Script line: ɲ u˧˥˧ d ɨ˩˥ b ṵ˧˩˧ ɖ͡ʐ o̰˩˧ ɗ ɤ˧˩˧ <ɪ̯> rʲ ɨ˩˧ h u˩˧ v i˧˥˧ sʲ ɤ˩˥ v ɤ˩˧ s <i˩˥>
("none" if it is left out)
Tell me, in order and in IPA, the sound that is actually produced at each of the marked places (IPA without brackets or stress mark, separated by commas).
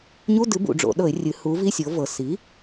ɪ̯, i˩˥